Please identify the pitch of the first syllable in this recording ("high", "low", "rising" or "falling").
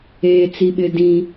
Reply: low